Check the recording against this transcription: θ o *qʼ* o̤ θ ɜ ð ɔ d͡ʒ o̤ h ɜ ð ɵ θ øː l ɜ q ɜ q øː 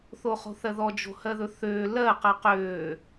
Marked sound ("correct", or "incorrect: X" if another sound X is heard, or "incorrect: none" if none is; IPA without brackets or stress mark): incorrect: χ